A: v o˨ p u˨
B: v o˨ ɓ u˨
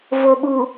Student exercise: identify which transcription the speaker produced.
B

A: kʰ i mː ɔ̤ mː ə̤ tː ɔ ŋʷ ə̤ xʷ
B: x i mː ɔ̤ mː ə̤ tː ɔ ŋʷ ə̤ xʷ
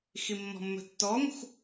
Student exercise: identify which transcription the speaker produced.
B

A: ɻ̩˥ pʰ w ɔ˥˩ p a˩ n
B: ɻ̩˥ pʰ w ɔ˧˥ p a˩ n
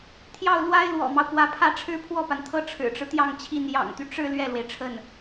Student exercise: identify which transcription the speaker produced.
A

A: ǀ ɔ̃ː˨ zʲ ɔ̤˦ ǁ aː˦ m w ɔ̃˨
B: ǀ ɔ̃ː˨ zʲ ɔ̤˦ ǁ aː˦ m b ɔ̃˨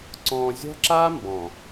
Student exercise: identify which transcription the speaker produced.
B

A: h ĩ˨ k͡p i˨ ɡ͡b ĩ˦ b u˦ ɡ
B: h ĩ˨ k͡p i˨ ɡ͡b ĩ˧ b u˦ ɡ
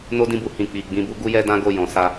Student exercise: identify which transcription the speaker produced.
B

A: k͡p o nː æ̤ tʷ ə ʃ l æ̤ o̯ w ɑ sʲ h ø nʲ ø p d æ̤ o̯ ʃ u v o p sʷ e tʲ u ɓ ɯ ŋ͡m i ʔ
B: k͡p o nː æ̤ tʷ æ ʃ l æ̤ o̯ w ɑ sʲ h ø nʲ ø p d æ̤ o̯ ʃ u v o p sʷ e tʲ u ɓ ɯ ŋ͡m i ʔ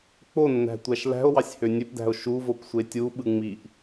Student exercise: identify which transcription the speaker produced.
B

